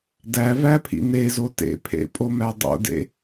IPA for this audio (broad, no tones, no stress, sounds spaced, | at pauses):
d æ v æ pʰ ḭ n e z o t ḛ pʰ ḛ pʼ o m æ dˤ o̰ d ḛ